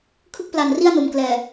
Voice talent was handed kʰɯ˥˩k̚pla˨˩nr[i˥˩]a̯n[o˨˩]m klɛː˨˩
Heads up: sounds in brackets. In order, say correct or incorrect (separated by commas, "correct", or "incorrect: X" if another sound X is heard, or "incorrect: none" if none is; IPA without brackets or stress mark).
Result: correct, correct